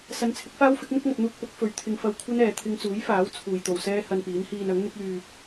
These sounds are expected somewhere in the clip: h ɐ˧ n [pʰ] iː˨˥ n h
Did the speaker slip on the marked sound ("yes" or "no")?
yes